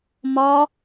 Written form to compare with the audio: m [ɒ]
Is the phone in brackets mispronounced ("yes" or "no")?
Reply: no